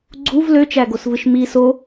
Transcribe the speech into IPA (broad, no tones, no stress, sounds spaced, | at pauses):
ɡ͡ǀ u v l ø t͡ʃ æ ɡ o s v ɯ ʃ m i s o